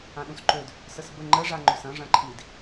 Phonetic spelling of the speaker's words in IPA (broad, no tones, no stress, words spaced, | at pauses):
ãɗũsǃød | səsbə ŋ͡ǃəʐa ŋ͡ǃøsɐ̃ ʐɐ̃ǃʰid